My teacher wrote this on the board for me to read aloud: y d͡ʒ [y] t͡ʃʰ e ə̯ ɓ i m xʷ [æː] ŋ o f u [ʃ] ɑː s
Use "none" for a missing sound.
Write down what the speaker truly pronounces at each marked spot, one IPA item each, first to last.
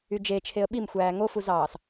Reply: e, æː, z

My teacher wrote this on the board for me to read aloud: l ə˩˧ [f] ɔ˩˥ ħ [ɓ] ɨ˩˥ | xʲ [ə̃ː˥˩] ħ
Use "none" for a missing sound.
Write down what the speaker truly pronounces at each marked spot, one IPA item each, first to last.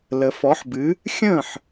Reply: f, b, ə̃ː˥˩

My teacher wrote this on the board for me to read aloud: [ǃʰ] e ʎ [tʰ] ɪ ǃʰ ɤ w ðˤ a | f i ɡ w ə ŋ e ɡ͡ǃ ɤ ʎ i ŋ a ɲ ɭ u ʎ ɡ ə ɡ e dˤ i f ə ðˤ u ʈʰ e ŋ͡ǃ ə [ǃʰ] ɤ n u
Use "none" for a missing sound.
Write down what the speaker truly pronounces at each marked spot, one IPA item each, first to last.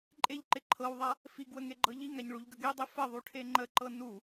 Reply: ǃʼ, ǃ, ǃ

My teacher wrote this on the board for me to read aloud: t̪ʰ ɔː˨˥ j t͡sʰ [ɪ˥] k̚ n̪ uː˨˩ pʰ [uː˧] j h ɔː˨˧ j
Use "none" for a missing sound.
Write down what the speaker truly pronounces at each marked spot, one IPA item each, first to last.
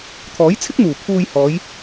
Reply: ɪ˥, uː˧

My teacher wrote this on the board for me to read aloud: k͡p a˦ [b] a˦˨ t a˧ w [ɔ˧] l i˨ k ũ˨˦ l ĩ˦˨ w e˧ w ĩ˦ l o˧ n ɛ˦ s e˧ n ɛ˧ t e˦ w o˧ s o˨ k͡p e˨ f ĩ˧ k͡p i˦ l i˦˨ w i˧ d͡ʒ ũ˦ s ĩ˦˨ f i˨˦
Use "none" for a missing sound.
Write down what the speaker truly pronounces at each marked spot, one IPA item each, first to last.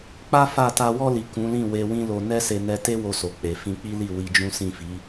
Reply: f, ɔ˧

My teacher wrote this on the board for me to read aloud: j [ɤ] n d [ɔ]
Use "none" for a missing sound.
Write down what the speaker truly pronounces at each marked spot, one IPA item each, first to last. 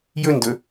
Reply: ɵ, ɵ

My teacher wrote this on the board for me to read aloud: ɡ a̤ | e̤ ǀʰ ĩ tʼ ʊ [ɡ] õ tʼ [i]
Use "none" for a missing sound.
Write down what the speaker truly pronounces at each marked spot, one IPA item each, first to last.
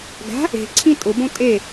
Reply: b, e

